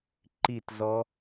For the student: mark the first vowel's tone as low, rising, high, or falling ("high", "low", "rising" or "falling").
falling